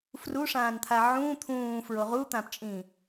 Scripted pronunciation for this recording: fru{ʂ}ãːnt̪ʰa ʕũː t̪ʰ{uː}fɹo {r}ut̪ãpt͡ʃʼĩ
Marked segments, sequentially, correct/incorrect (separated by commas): correct, incorrect, incorrect